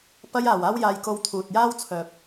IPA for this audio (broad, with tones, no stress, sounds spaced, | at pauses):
p ɐ˧ j aː˨˩ w aː˥ w j aː˧ j k o˧ w t̪ʰ uː˨ t̚ j aː˥ w t͡sʰ œː˨ p̚